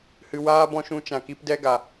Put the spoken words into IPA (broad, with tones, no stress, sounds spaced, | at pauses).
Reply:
h ɨ˧ w aː˦ b ɔ̃˦ ʃ ũ˧ t͡ʃ ã˨ k i˧ p d ɛ˦ ɡ a˨